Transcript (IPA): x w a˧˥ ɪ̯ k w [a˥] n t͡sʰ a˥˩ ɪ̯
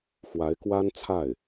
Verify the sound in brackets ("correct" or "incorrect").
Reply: correct